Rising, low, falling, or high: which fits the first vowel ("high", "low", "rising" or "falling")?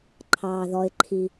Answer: low